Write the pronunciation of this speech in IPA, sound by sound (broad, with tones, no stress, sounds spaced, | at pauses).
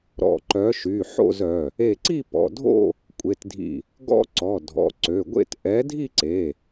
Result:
ɾ ɔ̰˧˩ ǃ œ˨˥ ʃ y˩˧˩ ħ o̰˥˧ z œ˩˧˩ | e˧˩ ǀ i˥˧ p ɔ̰˩˧˩ dʱ o̰˥˧ | kʷʼ e˩˧˩ t dʱ ḭ˧˩ | ɡ ɔ̰˥˧ ǀ ɔ˩˧˩ dʱ ɔ̰˩˧˩ ǀ ø˩˧˩ ɡʷ ḛ˥˧ t ʔ ɛ˨˥ dʱ i˥˧ ǀ e˩˧˩